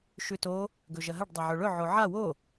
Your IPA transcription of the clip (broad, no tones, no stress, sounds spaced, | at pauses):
ʃ ʉ t o | ɡ ɵ ʒ ɐ ɦ ɐ ɖ dˤ ɐ ʕ ɵ ɭ ɵ ʕ o ʕ a w o